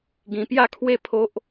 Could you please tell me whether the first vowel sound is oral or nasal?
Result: nasal